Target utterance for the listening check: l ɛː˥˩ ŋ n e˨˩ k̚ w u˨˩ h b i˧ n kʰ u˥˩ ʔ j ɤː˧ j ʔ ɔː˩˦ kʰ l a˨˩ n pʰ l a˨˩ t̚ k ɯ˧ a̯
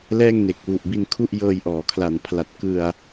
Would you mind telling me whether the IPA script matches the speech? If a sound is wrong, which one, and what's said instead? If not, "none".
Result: h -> ʔ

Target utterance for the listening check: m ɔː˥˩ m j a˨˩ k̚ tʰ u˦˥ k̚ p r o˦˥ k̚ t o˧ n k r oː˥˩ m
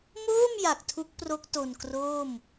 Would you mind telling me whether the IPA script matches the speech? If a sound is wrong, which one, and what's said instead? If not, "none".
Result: ɔː˥˩ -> oː˥˩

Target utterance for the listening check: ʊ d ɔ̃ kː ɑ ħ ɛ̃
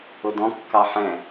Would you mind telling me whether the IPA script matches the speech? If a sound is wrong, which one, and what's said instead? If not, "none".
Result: none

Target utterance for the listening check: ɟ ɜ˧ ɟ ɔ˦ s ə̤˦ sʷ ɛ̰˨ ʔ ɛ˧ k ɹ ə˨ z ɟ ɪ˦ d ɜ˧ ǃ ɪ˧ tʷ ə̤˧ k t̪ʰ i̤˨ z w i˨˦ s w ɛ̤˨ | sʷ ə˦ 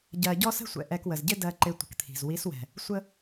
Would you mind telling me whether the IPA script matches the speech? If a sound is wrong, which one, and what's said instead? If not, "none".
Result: ɹ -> w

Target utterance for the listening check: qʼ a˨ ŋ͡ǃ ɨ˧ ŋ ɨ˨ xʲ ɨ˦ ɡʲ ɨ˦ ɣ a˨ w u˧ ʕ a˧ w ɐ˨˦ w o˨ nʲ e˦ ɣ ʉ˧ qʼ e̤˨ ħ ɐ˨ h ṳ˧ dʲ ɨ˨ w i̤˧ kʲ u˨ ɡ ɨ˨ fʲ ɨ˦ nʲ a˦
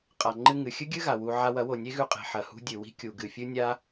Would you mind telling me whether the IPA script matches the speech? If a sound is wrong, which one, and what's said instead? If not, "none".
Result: none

